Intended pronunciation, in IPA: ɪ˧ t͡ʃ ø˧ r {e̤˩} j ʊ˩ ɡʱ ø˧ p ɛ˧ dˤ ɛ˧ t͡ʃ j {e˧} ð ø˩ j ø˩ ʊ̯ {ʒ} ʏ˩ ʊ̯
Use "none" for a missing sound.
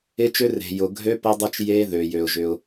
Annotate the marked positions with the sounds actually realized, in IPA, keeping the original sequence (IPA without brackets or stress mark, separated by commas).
e̤˩, e˧, ʒ